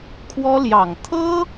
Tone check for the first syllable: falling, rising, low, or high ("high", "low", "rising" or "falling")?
high